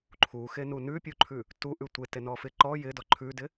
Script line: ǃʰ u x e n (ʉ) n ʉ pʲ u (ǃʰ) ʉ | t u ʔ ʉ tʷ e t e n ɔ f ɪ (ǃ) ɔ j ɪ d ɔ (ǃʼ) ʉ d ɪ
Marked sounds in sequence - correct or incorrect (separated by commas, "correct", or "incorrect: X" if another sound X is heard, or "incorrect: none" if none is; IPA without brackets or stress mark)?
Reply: incorrect: u, correct, correct, incorrect: ǃʰ